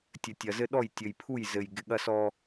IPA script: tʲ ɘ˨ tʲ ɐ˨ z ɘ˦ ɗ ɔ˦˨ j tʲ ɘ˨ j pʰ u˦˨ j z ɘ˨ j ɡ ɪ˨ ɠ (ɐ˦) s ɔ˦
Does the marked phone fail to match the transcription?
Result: no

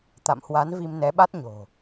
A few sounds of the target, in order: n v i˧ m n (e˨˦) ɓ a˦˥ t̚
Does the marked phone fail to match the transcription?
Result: yes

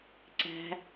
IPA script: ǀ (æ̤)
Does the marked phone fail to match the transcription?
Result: no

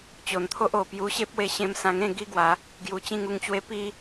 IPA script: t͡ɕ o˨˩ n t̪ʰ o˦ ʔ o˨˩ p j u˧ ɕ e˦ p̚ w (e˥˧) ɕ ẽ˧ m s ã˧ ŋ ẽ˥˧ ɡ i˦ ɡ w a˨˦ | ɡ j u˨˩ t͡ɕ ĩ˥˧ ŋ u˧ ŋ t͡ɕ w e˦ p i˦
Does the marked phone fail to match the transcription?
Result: yes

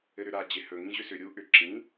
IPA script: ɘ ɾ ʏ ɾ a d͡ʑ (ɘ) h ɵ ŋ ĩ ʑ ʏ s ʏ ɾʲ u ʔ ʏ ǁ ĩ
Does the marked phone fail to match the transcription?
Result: yes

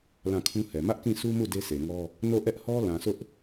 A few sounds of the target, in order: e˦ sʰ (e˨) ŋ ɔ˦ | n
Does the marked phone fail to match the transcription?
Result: no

